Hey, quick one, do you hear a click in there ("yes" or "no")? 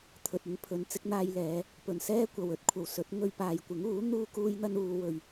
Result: no